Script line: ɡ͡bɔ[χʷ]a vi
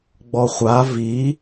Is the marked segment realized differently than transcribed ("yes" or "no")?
no